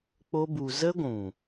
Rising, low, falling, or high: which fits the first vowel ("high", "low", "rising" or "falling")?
high